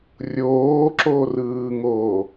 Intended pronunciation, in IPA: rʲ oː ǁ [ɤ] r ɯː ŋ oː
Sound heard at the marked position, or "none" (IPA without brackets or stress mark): o